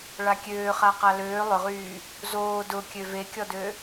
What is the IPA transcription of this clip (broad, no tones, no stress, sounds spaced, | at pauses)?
ɭ a kʲ øː χ a q a l øː lˠ ʏ ʁ yː | z oː d ʊ kʲ ø v e kʲ ɔ d ø